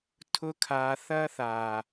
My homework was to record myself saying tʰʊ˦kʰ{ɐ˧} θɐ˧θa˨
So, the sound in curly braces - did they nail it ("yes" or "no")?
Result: no